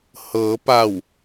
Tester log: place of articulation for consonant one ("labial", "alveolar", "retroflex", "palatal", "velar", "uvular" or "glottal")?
glottal